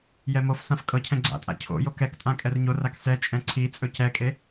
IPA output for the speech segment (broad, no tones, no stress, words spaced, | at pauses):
jɛmofsãf kʼɤcʰɛ̃ ɡ͡ǀa̰tʼa̰ cʰo̰jok ɛktʼã kʼɛrɲorak sɛt͡ʃʼɛ̃ ǀʰit͡sʼɵ cɛkʼe